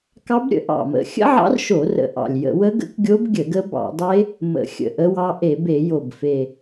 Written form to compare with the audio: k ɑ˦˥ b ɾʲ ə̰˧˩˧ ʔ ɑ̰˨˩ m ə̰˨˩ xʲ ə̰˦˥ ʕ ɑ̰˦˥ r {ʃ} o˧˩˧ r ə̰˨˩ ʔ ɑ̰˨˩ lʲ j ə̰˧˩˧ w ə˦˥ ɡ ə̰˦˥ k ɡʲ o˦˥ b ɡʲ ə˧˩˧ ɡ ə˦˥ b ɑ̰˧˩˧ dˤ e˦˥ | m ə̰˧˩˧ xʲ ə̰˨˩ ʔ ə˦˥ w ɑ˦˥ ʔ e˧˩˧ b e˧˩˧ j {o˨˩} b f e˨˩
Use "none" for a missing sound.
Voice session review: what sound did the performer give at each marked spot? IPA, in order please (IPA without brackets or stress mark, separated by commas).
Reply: ʃ, o˨˩